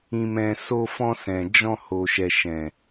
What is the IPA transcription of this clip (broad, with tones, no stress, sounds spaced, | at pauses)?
ĩ˨ m ɛ̃˨ s o˧ f ɔ̃˧ s ɛ̃˨ d͡ʒ ɔ̃˧ h o˨ ʃ ɛ˨ ʃ ɛ̃˨